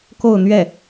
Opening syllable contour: falling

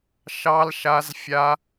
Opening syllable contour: high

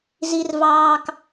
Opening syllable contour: low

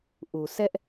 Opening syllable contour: low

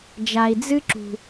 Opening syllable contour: low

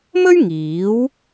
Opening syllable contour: high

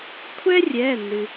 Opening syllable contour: high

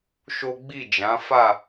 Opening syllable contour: high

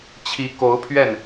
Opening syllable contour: rising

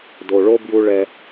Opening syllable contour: low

